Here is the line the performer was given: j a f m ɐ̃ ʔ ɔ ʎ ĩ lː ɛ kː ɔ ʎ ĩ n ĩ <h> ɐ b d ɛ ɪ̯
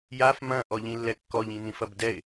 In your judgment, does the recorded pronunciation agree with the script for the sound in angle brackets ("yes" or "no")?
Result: no